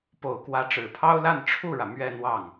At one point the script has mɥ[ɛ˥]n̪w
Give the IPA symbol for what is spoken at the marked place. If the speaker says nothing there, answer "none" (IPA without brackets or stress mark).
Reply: ɛ˥˧